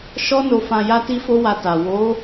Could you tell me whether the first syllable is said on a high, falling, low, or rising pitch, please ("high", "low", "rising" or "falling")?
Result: high